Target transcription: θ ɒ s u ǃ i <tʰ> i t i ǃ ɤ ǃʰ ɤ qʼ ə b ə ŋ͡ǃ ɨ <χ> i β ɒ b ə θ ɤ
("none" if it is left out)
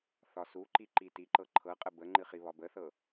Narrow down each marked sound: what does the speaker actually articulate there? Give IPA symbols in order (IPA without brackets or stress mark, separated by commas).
ǃ, χ